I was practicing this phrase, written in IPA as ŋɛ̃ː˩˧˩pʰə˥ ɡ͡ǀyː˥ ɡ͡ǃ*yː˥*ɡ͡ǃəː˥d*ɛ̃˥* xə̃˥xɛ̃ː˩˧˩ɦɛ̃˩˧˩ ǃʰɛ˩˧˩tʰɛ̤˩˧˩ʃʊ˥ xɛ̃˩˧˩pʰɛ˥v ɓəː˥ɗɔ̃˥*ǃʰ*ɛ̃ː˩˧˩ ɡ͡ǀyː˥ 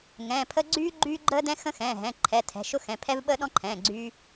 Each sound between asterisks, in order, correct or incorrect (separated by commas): correct, correct, correct